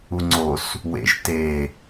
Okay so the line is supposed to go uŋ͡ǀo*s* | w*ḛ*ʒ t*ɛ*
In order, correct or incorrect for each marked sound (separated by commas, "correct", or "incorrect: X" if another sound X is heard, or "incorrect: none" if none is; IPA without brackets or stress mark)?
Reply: correct, correct, incorrect: e